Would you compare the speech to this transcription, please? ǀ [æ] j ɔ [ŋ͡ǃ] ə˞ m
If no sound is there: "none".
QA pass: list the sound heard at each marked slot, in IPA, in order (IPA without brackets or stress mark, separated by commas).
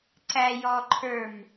æ, ǃʰ